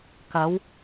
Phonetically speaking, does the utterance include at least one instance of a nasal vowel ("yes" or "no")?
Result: no